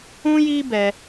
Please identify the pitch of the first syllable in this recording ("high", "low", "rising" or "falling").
high